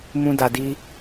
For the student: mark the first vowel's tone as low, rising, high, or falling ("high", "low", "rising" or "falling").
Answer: high